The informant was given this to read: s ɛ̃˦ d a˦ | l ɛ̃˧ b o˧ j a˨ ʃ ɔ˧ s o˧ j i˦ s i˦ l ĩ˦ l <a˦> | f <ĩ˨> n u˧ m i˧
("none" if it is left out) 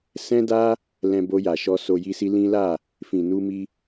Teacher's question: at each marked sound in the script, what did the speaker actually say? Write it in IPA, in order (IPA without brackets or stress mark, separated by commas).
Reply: a˦˨, ĩ˨